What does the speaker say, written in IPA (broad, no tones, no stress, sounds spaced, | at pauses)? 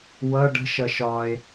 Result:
w ʌ ɖ ə̤ ʃ ʌ ʃ ɒ e̯